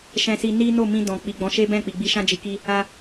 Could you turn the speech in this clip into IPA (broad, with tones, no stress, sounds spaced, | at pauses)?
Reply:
ʃ ɛ̃˧ s i˧ n i˦ n o˦˨ m ĩ˧ d ɔ̃˨ k͡p i˨ ɡ͡b ɔ̃˨˦ ʃ e˦ b ɛ̃˦˨ k͡p i˨ ɡ͡b i˧ ʃ ã˦ d͡ʒ i˧ k i˦ | a˦